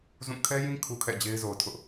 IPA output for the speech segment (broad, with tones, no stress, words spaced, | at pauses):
zũ˦˨ kʰɛ˦jĩ˦ kʰu˦kʰɛ̰˦˨d͡ʑe˦ɪ̯zo˨ʊ̯ tʰʊ˦ʔ